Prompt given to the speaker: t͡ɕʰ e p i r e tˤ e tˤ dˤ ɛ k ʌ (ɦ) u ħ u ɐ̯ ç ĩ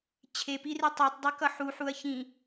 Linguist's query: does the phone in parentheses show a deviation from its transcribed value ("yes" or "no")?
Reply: yes